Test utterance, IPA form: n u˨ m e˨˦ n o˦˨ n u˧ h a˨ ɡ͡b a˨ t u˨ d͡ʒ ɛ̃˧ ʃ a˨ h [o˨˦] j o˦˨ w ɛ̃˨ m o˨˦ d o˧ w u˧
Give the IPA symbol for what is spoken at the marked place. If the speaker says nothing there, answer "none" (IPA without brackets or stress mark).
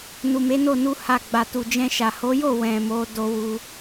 o˨˦